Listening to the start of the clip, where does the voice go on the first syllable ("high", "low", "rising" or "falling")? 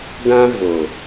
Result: high